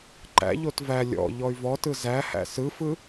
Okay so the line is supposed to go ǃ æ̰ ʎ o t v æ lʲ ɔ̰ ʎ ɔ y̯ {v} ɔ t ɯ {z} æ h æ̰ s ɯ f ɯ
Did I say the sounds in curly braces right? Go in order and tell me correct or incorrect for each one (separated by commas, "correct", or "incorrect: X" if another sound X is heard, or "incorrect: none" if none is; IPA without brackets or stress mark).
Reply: correct, correct